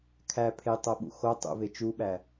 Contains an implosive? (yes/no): yes